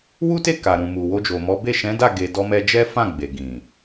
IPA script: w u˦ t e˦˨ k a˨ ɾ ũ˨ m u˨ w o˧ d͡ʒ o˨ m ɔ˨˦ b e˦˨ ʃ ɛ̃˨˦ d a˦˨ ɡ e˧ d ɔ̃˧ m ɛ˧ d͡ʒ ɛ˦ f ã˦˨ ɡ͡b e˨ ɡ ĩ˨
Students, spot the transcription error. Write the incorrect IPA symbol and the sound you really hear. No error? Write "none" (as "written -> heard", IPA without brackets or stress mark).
ɔ̃˧ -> ɔ˧